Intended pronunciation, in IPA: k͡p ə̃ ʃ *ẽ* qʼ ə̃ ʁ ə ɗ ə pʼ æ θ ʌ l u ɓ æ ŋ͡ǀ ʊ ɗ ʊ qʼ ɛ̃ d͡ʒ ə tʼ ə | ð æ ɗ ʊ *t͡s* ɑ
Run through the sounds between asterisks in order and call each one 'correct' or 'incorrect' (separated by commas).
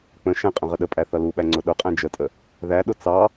incorrect, correct